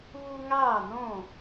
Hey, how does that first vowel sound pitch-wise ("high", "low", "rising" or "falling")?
high